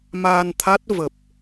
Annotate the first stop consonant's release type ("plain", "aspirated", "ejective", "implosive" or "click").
aspirated